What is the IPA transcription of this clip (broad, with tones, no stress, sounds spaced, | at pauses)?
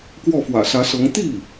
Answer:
k w ɔ˥˩ f w ä̰˨˩ s ä˧˥ s ɤ˧˥ ŋ t̪ i˥˩